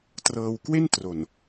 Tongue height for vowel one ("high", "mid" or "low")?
mid